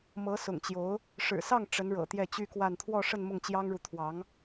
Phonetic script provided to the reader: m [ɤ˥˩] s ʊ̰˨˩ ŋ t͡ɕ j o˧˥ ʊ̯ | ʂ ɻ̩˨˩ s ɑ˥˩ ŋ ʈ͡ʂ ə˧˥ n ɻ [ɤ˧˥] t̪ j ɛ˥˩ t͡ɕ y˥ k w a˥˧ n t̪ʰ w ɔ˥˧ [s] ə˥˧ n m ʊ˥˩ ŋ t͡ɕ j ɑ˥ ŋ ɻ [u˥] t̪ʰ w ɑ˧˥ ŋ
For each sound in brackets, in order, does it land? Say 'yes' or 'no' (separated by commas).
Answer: no, no, no, no